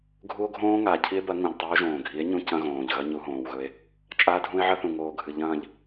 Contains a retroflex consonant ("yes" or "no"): no